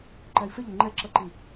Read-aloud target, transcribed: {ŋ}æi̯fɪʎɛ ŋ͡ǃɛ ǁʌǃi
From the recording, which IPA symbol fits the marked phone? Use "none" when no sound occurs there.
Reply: ǃ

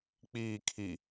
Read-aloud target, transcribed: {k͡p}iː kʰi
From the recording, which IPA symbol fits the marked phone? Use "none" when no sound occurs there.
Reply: k͡p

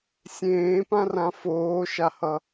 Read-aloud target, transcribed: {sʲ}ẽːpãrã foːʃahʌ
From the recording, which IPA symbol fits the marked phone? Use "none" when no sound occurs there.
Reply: sʲ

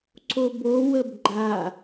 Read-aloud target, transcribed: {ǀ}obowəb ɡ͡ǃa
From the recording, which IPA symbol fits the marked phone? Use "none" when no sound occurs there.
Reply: ǀ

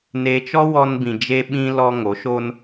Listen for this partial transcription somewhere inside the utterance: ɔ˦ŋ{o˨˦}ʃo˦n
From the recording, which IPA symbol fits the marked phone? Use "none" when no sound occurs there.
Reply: o˨˦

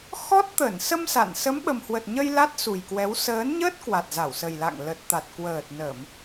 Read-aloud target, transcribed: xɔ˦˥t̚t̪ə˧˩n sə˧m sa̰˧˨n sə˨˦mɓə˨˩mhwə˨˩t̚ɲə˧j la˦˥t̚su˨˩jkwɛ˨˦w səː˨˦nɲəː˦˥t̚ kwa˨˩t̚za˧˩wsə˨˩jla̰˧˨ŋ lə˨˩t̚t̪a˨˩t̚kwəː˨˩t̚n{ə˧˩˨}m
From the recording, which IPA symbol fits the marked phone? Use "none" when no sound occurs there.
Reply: ə˧˩˨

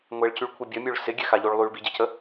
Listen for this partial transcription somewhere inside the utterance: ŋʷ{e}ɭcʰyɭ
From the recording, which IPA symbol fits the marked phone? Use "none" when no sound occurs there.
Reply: e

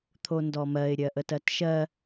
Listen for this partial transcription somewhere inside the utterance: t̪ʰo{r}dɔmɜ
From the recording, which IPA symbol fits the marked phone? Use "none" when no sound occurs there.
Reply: n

